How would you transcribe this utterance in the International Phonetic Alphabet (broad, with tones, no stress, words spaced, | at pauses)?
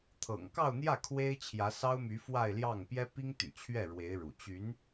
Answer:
t̪ʰɤ̰˨˩ŋ kɑ˥˧ʊ̯n̪jä˥˩ kʰwe˥ɪ̯ t͡ɕʰjä˧˥sɑ˥ʊ̯my˧˥ fwa˥˧ɪ̯ljɑ˥˩ŋ pjɛ˥pi˥ŋ t̪y̰˨˩t͡ɕʰɥɛ˥˩ ɻwe˧˥ɪ̯ ɻṵ˨˩ t͡ɕy˧˥n